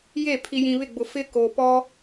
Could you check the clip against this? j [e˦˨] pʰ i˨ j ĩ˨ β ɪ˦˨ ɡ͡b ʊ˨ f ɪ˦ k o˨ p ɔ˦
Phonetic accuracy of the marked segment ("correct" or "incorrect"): correct